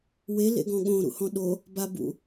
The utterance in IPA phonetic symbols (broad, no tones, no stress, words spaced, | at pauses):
we lḛɡɔ̃ɠõ ɾṵhɔ̃ɗo | babṵ